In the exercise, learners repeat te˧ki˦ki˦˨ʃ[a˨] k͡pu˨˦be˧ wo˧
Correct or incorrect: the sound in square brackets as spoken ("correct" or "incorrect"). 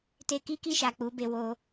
correct